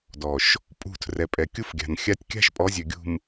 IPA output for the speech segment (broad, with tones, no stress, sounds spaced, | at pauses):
d ɔ˨ ʃ | pʼ ṳ˦˨ tʰ r ɛ˨ pʼ ɛ˨ kʲ u˦ f ɡʲ a̤˨ n xʲ a˦ tʲ kʲ a̤˦ ʃ pʼ ɔ˨˦ zʲ ø˨ ɡʲ ṳ˨ m